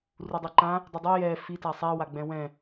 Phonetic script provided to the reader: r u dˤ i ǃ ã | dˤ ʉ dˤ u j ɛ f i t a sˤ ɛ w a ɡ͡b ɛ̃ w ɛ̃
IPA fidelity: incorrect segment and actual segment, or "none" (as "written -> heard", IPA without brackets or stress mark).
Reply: none